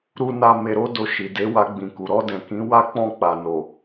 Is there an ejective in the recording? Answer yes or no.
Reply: no